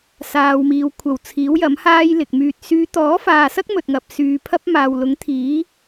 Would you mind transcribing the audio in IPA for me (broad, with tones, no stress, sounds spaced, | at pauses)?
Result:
s aː˨ w m iː˨ w kʷʰ ɐ˨˩ w t͡sʰ iː˨˥ w j ɐ˨˥ m h aː˥ j l ɪ˨ k̚ m yː˧ t̚ s yː˨˧ t̪ ɔː˨˥ f aː˨ s ɐ˥ k̚ m ɵ˨ t̚ ŋ ɐ˨ p̚ s yː˨ pʰ ɐ˥ p̚ m aː˨ w l ʊ˨˥ ŋ t̪ʰ iː˨˥